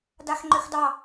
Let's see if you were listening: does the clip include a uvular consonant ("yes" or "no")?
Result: no